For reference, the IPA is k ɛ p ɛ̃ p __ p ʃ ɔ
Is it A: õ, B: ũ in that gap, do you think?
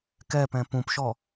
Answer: B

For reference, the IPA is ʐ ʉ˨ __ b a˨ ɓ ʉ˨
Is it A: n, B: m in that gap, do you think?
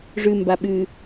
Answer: B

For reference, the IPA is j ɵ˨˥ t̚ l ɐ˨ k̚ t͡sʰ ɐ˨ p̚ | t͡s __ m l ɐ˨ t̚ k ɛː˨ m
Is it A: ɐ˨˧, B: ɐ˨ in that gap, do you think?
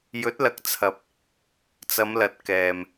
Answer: A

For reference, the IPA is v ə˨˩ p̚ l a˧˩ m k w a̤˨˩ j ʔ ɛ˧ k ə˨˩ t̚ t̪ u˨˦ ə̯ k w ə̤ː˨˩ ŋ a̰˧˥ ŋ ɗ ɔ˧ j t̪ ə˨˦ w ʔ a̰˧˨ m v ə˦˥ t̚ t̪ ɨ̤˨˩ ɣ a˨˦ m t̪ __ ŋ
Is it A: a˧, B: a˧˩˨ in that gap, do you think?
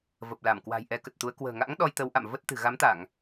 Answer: B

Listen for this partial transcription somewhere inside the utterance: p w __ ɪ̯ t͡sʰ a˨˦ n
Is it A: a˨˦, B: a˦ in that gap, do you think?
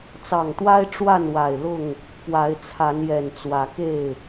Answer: A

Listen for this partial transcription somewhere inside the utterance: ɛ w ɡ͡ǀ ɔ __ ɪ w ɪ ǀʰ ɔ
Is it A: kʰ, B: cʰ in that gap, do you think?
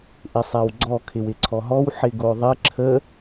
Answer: A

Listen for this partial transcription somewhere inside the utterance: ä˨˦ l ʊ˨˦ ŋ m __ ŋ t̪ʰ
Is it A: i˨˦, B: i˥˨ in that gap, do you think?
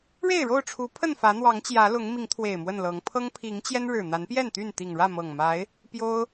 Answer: A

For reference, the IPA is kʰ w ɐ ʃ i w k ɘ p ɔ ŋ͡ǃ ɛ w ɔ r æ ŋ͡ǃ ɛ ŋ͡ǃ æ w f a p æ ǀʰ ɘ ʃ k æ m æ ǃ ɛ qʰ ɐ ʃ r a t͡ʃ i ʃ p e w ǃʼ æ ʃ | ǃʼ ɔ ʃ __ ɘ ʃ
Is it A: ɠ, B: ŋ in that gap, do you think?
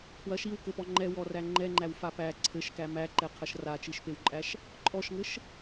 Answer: B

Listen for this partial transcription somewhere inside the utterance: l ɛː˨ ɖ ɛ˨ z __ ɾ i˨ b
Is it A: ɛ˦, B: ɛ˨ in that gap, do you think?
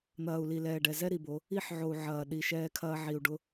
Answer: A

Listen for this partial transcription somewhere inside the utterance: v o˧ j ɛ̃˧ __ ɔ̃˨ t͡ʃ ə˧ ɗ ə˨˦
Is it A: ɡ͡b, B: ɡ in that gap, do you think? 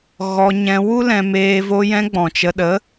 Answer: A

